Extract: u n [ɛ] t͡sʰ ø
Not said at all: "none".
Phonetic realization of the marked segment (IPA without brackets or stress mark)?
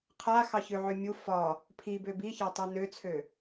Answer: ø